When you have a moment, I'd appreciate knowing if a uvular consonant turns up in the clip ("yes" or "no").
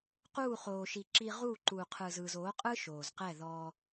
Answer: yes